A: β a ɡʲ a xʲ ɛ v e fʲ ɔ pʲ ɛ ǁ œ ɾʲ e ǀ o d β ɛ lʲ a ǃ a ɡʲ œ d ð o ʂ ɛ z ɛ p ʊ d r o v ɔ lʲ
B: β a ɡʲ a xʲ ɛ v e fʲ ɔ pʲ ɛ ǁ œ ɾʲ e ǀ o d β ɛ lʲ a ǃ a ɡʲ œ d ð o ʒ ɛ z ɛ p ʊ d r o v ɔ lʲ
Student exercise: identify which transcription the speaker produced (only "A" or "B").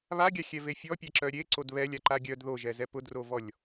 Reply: B